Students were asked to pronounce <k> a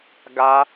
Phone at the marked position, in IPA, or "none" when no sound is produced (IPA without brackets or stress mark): ɡ